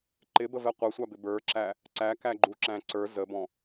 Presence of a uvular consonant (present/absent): present